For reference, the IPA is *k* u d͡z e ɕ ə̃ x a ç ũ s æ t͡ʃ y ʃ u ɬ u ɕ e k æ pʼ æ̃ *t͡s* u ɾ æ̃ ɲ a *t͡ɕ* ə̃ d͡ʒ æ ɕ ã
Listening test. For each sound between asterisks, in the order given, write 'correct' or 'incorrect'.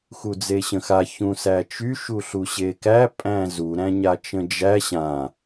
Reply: incorrect: x, incorrect: z, incorrect: t͡ʃ

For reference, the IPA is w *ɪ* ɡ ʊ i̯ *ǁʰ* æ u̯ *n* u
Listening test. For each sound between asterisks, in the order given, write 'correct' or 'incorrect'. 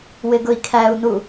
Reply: correct, incorrect: kʰ, correct

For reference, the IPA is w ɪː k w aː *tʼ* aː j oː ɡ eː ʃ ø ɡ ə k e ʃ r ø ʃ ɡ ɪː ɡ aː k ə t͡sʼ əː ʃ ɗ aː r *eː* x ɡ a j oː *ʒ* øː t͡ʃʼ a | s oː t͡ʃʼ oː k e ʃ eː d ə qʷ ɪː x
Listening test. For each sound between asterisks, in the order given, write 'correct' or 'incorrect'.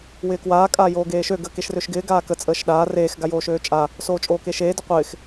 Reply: incorrect: kʼ, correct, incorrect: ʃ

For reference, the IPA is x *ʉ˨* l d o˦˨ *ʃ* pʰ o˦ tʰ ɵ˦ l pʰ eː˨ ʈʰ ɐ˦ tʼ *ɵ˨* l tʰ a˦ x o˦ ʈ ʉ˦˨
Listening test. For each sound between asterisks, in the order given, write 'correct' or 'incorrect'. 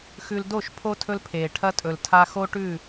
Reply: correct, correct, correct

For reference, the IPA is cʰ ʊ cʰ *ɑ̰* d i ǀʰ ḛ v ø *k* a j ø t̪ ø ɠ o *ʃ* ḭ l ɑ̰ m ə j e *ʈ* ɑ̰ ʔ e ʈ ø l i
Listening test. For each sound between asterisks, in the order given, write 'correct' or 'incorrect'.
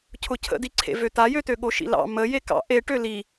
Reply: incorrect: ə̰, incorrect: t̪, correct, incorrect: k

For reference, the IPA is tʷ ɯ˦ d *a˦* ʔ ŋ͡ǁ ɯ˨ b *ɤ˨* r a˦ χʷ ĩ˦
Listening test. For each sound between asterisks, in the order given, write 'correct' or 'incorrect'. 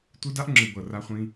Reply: correct, correct

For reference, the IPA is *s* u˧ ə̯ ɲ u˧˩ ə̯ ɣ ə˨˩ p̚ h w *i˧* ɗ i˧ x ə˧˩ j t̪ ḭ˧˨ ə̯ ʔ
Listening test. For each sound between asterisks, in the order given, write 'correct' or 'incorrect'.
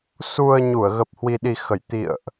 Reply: correct, correct

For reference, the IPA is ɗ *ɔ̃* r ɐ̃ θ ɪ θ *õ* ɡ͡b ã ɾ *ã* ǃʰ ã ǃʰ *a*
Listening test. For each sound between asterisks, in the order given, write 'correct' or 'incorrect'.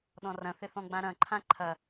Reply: correct, incorrect: ɔ̃, incorrect: ɐ̃, incorrect: ɐ

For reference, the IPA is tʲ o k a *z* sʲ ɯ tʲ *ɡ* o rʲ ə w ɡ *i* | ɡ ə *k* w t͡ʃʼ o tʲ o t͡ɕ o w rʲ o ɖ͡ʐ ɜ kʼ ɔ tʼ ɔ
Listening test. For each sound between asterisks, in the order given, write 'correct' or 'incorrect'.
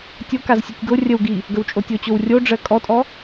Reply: correct, correct, correct, incorrect: none

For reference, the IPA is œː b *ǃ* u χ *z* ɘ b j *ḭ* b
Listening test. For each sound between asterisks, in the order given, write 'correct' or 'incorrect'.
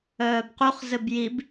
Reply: incorrect: q, correct, incorrect: i

